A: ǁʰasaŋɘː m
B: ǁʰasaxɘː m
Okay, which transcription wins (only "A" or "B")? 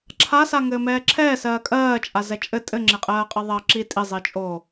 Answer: A